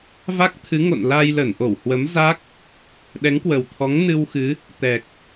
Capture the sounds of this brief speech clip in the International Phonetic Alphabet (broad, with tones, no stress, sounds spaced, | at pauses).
v a˦˥ k̚ t̪ʰ ɨ˨˦ ŋ o̰˧˨ n l aː˧ j l ə˧˩ n ʔ o˧˩ w h w ə˨˦ m z a˦˥ k̚ | ɗ ɛ˨˦ ŋ k w ə˨˩ w t̪ʰ ɔ˨˦ ŋ n ɨ˧ w x ɨ˨˦ | t̪ ɛ˨˩ k̚